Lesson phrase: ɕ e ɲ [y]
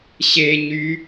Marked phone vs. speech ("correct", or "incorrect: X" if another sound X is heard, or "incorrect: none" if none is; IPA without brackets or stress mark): correct